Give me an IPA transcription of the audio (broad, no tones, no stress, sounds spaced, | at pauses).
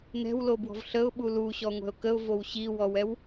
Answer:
n ɛ̤ w l o b w ɔ̤ v ɬ ə ʊ̯ ɓ u l u ɕ ɔ ŋʷ ɛ̤ ʊ̯ k ə ʊ̯ v o w ɕ i w ɔ w ɛ w